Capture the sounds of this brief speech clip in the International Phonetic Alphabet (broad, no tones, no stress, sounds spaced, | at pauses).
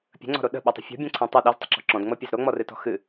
pʲ ə̤ ŋ͡ǀ ɔ̤ ɾ o ɗ ə̤ ɓ ɛ tˤ ə̤ fʲ ɔ̤ bʲ ɛ̃ ǀʰ ẽ tˤ ɨ ɗ ɛ z tˤ ə̤ ǁ ɔ̤ ǁ ɔ̃ d ŋ͡m ɤ pʲ e z ɾ o ŋ͡m ɔ r ɨ t ɔ̤ x ɨ